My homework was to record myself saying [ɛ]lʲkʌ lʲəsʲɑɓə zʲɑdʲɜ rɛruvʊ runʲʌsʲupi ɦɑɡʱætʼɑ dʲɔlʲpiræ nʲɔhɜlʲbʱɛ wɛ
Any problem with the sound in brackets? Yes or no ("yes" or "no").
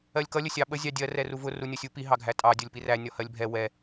yes